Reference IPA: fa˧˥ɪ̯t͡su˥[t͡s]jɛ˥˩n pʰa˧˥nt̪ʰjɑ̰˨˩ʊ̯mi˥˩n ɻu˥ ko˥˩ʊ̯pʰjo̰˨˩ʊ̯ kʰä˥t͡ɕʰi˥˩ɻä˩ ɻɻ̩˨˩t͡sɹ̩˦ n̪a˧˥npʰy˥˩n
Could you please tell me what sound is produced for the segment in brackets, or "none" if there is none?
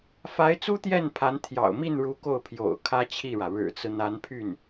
t̪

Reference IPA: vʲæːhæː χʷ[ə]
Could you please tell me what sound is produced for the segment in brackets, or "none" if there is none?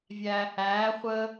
əː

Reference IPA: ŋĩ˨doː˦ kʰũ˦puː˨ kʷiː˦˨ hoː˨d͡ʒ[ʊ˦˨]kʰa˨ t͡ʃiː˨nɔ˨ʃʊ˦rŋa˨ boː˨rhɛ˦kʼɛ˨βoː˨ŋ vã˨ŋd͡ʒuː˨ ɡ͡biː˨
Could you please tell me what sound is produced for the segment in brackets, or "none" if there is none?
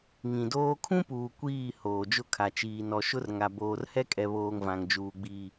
ʊ˦˨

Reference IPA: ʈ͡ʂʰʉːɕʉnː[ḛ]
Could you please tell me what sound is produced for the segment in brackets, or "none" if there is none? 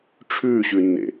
ḛ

